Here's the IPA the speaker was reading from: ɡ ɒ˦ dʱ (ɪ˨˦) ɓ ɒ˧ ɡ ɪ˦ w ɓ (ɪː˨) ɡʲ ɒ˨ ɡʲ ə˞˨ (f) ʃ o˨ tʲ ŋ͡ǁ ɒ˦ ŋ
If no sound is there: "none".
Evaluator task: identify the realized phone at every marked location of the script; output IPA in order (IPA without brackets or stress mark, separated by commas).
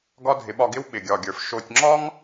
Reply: ɪ˨˦, ɪ˨, f